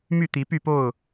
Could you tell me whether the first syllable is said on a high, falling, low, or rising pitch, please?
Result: falling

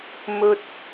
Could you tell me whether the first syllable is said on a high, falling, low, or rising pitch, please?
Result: high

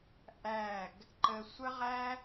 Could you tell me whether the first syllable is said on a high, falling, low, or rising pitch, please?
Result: falling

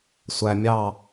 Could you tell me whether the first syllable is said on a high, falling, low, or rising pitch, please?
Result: low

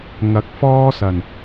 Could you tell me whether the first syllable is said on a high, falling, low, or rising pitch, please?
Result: rising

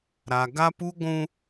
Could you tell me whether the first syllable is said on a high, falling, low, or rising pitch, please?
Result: high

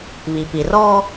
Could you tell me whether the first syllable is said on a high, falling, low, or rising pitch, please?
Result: low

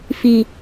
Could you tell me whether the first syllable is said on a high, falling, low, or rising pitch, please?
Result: low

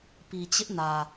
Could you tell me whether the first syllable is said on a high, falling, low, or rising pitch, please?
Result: low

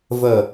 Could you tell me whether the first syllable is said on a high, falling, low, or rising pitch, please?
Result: low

